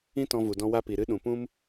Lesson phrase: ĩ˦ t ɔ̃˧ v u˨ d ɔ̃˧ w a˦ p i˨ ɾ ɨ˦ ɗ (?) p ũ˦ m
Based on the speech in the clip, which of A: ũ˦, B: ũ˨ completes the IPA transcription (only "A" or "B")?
B